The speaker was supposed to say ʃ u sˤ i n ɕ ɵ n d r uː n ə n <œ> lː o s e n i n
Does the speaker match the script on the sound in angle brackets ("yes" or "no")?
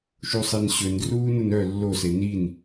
yes